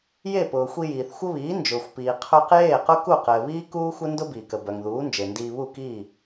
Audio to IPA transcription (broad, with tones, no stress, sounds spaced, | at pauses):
j e˥˩ p ʊː˩ xʷ i˧ j iː˩ θ xʷ ə˥ β iː˩˥ n d͡ʒ ʊː˩ xʷ p iː˩ qʰ œ˧ q j eː˥˩ q ʊ˥ k u˥˩ q ɘː˩ β iː˥ k uː˥ xʷ ɘ˥ n d ʊ˥ b iː˩ k ə˩ b œ˩ ŋ ð uː˩˥ n d͡ʒ e˩ n d iː˧ β u˥˩ k iː˥˩